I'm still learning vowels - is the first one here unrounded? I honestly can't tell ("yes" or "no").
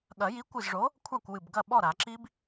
yes